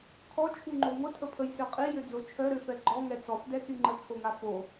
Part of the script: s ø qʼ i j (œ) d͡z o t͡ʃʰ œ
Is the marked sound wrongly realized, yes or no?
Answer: yes